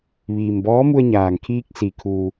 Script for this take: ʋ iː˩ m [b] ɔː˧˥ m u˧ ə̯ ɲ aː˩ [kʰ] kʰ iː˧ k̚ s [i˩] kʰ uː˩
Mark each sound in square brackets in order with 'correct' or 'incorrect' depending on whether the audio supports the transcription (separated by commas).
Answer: correct, incorrect, correct